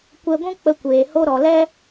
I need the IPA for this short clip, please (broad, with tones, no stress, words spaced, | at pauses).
kʷɛ˧ɡʷũ˦ k͡pə˧kʷeː˨ho˦ ɾɔ˨lɛ˦